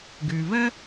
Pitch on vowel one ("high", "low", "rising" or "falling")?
low